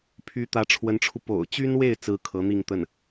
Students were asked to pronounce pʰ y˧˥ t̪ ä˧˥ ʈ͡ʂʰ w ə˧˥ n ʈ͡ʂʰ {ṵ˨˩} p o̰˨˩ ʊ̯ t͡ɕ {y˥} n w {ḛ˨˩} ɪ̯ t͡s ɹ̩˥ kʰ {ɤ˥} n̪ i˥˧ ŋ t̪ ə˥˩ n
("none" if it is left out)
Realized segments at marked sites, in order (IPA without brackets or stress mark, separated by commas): u˧, y˥, e˥˩, ɤ˧˥